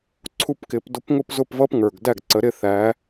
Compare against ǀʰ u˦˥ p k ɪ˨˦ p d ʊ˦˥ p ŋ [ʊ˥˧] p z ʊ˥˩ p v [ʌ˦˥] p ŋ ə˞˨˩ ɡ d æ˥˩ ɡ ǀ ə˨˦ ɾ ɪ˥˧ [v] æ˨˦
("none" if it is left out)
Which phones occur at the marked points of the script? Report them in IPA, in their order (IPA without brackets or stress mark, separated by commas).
ʊ˥˧, ʌ˦˥, θ